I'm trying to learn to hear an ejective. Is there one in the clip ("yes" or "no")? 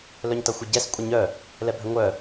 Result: yes